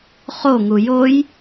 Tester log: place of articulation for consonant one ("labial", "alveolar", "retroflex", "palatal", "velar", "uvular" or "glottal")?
uvular